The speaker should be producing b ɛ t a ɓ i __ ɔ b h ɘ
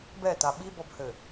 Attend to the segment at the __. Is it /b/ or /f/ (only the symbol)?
b